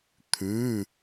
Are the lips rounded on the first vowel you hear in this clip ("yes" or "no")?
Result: yes